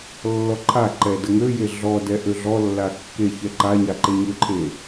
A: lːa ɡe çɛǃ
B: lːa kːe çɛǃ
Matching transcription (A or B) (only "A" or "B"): B